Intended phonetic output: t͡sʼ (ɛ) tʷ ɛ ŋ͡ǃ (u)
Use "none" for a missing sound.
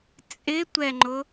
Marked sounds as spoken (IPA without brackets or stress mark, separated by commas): ɪ, ʊ